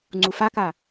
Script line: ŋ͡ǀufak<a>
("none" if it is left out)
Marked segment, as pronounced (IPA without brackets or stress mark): a